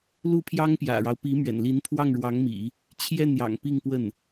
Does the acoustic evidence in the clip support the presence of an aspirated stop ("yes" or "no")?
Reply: yes